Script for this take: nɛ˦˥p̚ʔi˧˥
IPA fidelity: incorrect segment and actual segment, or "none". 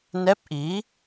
none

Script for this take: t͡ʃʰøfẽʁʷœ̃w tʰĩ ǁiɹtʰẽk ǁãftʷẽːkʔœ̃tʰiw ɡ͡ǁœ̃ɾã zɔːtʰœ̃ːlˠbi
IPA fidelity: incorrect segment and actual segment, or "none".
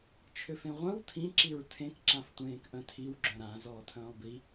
none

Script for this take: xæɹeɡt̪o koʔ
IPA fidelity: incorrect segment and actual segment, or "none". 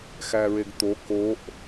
none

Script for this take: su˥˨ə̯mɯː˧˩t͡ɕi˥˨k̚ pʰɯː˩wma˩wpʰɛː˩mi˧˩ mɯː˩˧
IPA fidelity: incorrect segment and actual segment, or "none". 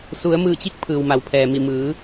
u˥˨ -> u˩˧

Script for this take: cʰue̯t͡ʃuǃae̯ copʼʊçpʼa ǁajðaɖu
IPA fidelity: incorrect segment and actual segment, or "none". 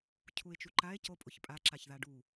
j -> ç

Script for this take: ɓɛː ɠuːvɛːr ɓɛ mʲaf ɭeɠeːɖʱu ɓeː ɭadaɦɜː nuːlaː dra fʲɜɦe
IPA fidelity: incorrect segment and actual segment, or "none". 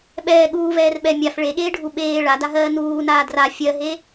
l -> n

